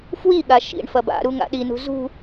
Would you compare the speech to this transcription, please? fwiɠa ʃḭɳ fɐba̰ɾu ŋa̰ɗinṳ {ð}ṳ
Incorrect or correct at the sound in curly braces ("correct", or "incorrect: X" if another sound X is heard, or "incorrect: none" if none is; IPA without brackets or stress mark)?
incorrect: z